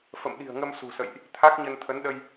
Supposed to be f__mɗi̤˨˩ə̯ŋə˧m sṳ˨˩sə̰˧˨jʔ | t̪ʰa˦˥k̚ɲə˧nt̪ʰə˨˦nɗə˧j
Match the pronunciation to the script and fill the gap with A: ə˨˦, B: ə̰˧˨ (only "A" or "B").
B